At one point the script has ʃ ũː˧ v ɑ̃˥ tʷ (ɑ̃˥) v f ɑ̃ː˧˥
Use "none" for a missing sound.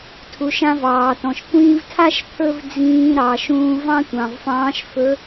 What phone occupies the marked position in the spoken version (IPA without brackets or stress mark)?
ɑ̃˩